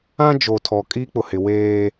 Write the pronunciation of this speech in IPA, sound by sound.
ã˦ d͡ʒ o˨ tʰ ɔ˨ kʼ i˦ k͡p ʊ˨ h ɪ˨ w eː˦

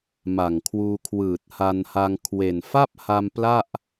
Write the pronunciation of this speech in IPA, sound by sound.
m a˨˩ ŋ kʰ w uː˧ kʰ w ɯː˨˩ t̚ h a˧ n h a˧ ŋ kʰ w e˨˩ n f a˥˩ p̚ h a˧ m p l a˥˩ ʔ

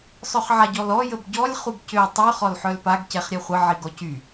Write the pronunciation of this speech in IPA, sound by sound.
sˤ œ χ ʕ a ɟ ɔ l ɔ j ə b ɟ ɔ lʲ χ u b c ø tˤ y χ ɔ l ħ œ l p a ɡ c ɛ χ ɾʲ ɛ χʷ ə ʕ i ɡ ɔ c y

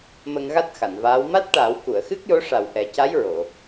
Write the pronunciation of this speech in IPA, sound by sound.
m ə˧ ŋ ɣ a˦˥ t̚ x a˨˩˨ n v aː˧˥ w m a˦˥ t̚ ʈ a˨˩˦ w k u˨˩˨ ə̯ x ɨ˦˥ k̚ j o˧˥ ʂ a˨˩ w ʔ ɛ˨˩˦ c a˧˥ j ɹ o˨˩˨

